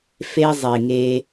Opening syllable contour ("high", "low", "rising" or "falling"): high